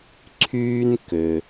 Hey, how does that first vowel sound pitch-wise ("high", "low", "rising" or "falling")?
high